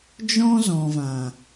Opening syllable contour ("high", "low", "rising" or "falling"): high